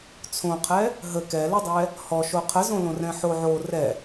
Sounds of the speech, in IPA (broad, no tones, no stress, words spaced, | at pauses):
t͡sʰõqʰɛ | ɦə kɛludˤɛ | hɔʃo qʰəzõlõ rɛ̃ħo ʕo rɛ